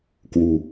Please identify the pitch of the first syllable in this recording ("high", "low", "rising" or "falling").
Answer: low